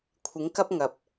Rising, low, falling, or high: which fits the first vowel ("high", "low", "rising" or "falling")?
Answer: rising